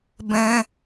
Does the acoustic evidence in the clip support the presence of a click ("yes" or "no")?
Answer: no